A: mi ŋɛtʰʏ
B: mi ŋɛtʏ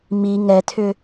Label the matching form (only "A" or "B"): A